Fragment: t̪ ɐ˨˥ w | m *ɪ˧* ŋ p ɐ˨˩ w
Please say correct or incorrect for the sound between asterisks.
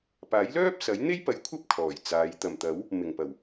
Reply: incorrect